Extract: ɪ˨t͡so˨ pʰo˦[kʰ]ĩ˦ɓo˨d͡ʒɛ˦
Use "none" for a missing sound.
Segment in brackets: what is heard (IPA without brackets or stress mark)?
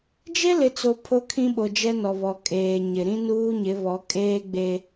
kʰ